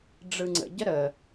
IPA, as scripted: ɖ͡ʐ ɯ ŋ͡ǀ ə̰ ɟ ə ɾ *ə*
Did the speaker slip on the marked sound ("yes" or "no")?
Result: no